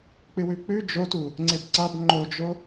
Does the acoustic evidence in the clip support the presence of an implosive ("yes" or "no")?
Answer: no